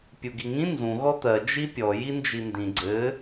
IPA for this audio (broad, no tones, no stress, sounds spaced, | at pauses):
pʲ u ɡ i ŋ ĩ n z ũ ɣ ɔ t̪ ɜ d͡ʒ i pʲ ɔ j i n d͡ʒ i n d ĩ ɡ͡ǀ ɘ